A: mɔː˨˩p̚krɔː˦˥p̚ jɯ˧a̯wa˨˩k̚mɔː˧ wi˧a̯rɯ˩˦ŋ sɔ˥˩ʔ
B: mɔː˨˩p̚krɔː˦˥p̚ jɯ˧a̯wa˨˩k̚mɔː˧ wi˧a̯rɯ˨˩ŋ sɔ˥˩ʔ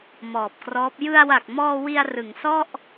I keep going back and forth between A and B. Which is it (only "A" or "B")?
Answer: A